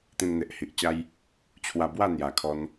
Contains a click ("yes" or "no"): no